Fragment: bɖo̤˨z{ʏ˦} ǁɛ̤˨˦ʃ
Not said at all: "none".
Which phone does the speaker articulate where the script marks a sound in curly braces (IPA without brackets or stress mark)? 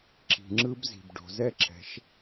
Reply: ɛ˦